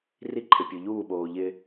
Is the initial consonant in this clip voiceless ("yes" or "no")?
no